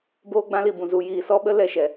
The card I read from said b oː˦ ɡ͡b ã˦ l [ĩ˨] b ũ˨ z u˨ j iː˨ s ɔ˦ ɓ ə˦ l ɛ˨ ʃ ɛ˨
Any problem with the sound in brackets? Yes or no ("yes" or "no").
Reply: yes